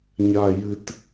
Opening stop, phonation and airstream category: plain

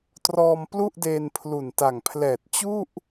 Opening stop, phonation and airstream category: plain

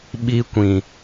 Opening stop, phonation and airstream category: implosive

